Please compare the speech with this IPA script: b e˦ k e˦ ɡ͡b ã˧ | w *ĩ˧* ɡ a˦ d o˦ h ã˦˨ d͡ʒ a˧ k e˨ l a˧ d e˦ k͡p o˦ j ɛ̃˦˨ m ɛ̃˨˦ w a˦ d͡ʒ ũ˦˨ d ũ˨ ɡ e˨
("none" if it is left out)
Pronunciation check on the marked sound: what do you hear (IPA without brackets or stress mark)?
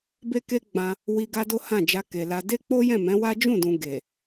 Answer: i˧